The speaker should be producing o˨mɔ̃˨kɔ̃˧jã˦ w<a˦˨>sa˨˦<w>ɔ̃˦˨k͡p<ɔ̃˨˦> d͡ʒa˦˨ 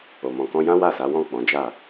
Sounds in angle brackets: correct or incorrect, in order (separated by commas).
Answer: correct, correct, correct